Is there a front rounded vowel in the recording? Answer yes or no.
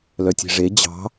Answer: yes